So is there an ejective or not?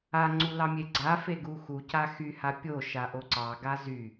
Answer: no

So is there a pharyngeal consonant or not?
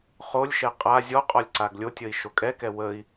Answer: no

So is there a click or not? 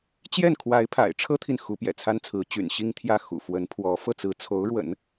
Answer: no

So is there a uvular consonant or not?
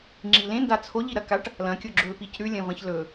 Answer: no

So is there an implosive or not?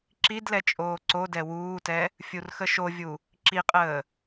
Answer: no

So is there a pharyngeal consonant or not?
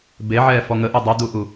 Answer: yes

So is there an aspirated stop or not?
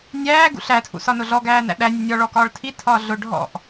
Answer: yes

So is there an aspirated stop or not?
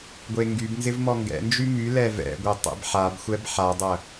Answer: no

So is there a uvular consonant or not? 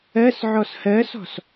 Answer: no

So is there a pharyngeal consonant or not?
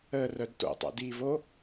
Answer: no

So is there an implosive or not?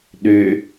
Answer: yes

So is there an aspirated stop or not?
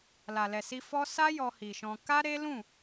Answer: no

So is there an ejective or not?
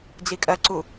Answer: yes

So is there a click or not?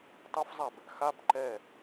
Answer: yes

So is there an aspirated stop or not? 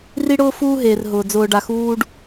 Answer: no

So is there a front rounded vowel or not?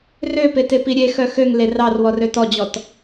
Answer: yes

